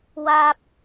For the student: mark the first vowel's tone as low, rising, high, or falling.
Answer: high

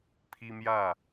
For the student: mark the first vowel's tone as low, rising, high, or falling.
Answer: high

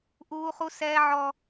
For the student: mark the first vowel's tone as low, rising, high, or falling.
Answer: high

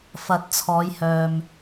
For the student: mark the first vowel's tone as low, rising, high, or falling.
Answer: rising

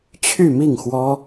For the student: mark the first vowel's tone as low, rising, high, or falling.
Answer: falling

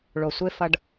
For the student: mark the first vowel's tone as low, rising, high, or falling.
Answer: low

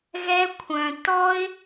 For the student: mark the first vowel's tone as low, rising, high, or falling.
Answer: high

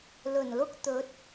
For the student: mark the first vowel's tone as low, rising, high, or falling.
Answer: low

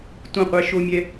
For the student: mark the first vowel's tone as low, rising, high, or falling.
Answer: falling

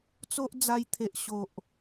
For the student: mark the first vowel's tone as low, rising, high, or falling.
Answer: high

